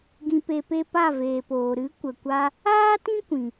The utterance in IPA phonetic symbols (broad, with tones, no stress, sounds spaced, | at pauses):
ɡ ĩ˨ p e˨ p e˧ p a˦˨ v eː˨ p oː˨ ɾ ɨ˨˦ kʷ ə˨ kʷ a˧ | aː˦ t ĩ˦ kʷ ĩ˨